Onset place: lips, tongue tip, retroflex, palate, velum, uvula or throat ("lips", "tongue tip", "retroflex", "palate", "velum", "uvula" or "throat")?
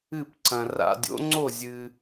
lips